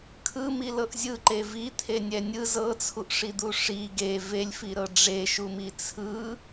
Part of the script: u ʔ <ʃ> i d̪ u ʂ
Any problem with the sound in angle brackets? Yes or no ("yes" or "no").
yes